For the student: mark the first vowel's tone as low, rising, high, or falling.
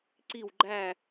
falling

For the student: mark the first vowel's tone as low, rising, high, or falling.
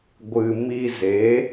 low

